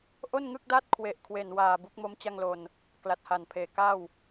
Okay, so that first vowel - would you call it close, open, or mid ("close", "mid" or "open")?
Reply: mid